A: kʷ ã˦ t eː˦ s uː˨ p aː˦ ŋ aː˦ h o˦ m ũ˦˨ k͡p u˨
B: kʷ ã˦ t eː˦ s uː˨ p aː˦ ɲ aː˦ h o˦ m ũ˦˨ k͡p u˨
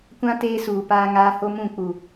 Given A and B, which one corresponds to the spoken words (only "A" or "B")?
A